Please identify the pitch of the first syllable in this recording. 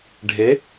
rising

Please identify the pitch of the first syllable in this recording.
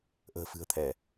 low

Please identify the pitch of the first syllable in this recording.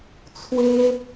high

